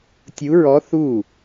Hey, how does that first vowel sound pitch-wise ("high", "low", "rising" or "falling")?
rising